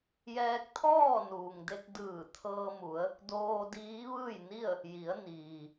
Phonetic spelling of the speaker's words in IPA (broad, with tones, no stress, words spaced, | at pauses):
jɛː˧k̚t̪ʰɔː˥˨nuː˩ŋde˧k̚ dɯː˧˩t̪ʰɤː˧mu˩˧ə̯ | doː˧ diː˧˥ʋɯː˥˨jni˥˨ə̯ | ji˩˧ə̯ niː˩